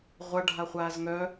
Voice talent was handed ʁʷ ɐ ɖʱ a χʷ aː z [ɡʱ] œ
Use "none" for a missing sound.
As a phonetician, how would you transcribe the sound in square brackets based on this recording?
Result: ŋ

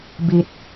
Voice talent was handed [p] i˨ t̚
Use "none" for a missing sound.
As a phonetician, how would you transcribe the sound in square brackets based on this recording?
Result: b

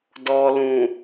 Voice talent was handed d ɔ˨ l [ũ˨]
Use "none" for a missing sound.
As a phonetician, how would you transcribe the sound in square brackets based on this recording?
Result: ũ˨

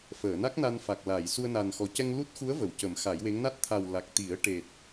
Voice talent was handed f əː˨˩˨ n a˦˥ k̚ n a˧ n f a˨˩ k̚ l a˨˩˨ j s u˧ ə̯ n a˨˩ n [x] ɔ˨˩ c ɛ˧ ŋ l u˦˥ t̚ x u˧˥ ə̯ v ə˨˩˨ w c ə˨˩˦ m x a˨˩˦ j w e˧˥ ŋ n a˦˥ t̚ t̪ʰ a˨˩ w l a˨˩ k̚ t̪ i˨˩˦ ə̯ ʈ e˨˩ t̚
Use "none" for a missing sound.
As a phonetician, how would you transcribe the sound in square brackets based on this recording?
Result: x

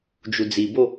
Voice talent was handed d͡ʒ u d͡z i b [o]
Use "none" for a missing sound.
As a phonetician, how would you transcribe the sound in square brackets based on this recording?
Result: o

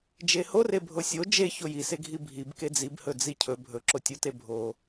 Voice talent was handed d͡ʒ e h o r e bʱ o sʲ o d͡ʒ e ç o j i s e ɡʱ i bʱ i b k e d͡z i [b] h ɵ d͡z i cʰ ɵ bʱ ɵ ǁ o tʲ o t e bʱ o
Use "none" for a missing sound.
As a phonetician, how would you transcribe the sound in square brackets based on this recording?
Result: b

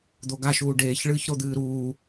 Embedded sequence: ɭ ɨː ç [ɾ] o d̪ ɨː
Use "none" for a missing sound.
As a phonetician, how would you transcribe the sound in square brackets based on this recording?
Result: ɾ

